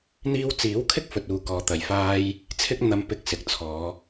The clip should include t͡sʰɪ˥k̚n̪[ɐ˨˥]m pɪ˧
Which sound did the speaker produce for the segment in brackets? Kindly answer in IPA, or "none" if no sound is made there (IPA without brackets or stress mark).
ɐ˧